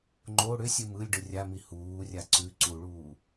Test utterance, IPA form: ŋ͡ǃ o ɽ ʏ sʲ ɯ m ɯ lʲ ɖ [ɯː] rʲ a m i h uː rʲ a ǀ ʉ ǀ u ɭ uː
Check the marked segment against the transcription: incorrect: ɯ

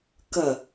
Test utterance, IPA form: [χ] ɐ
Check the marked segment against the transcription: incorrect: k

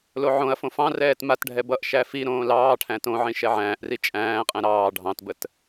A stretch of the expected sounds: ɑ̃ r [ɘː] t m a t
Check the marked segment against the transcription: incorrect: ɛː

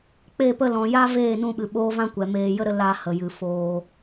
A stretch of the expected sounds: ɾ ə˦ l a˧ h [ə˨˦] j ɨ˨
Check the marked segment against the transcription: incorrect: ə˨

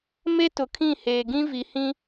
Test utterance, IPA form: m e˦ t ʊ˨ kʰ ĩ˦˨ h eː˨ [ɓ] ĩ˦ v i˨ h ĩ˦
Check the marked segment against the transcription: incorrect: ɡ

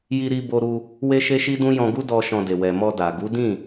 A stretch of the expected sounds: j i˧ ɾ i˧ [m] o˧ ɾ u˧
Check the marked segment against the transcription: incorrect: b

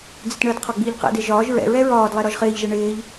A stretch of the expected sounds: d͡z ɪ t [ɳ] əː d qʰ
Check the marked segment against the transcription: correct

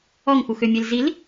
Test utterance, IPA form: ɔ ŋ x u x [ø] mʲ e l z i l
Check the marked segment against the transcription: correct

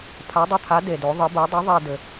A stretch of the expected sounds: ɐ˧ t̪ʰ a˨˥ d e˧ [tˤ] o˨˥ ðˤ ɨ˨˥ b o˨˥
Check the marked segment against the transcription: incorrect: d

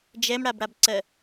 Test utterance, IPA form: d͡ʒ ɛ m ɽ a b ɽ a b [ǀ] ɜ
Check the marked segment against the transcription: correct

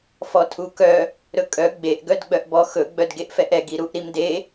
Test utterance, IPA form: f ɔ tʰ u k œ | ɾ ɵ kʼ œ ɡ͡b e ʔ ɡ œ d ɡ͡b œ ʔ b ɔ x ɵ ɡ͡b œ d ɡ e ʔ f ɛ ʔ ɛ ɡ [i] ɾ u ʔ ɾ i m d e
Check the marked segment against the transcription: correct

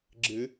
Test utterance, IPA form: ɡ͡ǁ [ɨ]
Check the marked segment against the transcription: correct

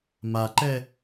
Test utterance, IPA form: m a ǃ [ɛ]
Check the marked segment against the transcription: correct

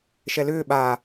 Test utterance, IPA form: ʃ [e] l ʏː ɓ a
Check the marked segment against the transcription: incorrect: ɛ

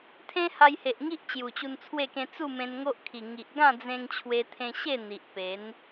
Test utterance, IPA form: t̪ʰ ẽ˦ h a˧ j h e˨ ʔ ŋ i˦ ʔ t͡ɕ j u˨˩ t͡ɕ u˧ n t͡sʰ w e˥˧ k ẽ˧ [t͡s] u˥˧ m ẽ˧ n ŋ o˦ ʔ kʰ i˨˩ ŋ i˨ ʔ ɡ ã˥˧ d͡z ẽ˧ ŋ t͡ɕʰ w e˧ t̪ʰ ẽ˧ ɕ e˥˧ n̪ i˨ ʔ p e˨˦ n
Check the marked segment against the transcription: correct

